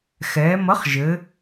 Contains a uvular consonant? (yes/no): yes